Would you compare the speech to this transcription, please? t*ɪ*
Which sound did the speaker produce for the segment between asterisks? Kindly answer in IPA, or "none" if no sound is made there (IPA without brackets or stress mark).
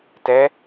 ɛ